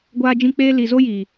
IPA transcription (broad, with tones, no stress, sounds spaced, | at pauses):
ɡʷ aː˦ d͡ʒ ĩ˦ k͡p eː˦ l i˨ z o˦ j i˨